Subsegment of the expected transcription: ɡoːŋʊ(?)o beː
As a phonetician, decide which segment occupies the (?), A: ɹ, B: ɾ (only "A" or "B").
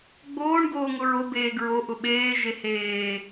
A